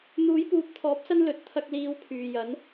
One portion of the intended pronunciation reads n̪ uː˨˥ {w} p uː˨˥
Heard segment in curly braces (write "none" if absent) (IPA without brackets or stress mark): j